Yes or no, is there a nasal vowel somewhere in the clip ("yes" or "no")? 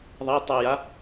no